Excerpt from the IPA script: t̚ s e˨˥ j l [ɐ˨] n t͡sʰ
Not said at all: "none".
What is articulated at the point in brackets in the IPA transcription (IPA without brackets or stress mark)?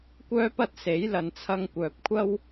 ɐ˨